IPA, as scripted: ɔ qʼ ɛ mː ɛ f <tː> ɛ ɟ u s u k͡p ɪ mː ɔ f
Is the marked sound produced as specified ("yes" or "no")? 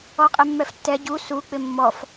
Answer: yes